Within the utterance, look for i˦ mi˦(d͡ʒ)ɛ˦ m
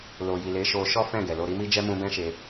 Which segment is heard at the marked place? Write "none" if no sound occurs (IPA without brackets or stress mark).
d͡ʒ